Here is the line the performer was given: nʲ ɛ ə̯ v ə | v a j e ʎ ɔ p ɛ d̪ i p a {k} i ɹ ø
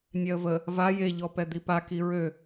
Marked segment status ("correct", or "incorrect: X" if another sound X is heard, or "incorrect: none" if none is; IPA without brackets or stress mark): correct